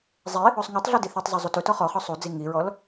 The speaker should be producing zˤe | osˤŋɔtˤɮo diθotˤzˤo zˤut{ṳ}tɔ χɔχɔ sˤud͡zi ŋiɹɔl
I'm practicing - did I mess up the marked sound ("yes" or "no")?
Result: yes